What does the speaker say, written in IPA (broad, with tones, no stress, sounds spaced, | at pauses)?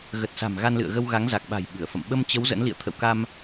ɣ ə˨˩ t̚ s a̤˨˩ m ɣ a˧ n l ɨ̰˧˨ ə̯ ɣ ə˧ w ɣ a˨˦ ŋ z a˨˩ k̚ ɓ a̤˨˩ j ɓ ɨ˧˩ ə̯ f ə̰˧˨ m ɓ ə˧ m t͡ɕ ə˨˦ w z ə̰˧˥ n l ḭ˧˨ ə̯ t̪ʰ ə̰˧˨ w k a˧ m